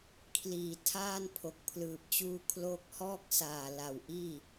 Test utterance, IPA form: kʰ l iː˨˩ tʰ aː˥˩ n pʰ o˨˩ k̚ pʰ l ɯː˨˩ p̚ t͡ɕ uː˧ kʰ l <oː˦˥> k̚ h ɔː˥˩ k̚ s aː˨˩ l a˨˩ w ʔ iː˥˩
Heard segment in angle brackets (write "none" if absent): oː˦˥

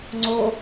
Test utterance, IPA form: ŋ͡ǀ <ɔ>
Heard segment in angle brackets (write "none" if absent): o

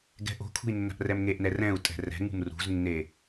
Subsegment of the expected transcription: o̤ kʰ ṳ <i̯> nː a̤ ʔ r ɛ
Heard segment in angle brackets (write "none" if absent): i̯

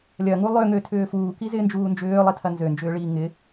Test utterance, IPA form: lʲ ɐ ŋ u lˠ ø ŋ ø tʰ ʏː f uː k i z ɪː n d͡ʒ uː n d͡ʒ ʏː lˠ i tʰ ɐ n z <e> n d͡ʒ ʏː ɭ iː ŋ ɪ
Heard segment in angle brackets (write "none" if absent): ø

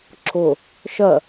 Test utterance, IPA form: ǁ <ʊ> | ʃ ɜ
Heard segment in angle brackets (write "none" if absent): ʊ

